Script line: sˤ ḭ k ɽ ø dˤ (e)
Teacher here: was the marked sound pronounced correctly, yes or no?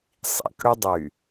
no